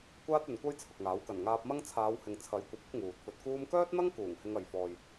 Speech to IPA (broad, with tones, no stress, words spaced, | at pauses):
kʷaː˥t̚ɵ˨nkʷɐ˥j t͡sʰʊ˨k̚ŋaː˨˥w kɐ˨˩nŋaː˧p̚mɐ˥ŋ t͡sʰaː˨˧whɪ˨ŋ t͡sʰɐ˨˥jkʷɐ˨p̚ʊ˨˥k̚ ŋuː˨t̚fɵ˧t̚ kuː˧mkœː˥t̚n̪ɐ˥ŋ kuː˨˩ŋhɪ˧ŋɐ˨jfɔː˨j